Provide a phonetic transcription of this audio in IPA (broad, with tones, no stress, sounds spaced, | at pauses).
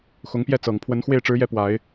x ʊ˧˥ ŋ p j ɛ˥˩ t͡s ɤ˨˩ ŋ pʰ w ə˧˥ n x w e˥˩ ɪ̯ ʈ͡ʂ ɻ̩˧˥ j ɛ˥˩ p w a˨˩˦ ɪ̯